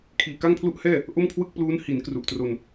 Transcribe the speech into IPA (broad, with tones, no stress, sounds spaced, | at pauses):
kʰ iː˨˩ k a˥˩ ŋ pʰ l u˥˩ ʔ h ɛː˥˩ | ʔ o˥˩ m kʰ w ɯ˥˩ k̚ p l uː˦˥ n h i˩˦ n k r u˨˩ ʔ t r o˧ n